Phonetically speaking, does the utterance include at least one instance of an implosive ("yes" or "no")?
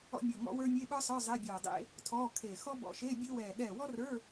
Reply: yes